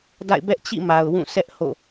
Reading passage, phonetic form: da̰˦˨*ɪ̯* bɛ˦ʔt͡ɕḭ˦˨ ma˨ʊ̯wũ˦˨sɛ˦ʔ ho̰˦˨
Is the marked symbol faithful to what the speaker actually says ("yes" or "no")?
yes